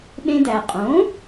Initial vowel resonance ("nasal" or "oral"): nasal